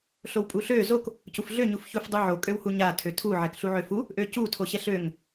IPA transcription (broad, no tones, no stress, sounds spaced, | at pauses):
ɬ o w pʼ u ɬ ø z o k | c u f ɮ ø ɲ u f ç u f dˤ u ʕ o kʼ ø w h u ɲ a tʰ ø tʰ u ʕ ɛ k ɬ u ʕ ø f u | ʔ ø c u tʰ o ɕ ɛ ɬ ø ŋ